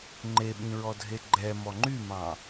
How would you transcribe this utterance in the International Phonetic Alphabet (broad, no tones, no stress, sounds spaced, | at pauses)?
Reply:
ŋ͡ǃ e ɓ ĩ ɹ ɔ dʱ e ɡ͡ǃ ɛ m ɔ ŋ͡ǃ y m ɑ̃